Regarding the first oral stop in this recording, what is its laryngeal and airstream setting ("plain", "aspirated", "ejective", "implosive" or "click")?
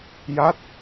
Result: plain